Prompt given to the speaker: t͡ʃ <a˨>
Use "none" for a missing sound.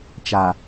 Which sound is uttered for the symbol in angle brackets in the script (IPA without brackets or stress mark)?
a˨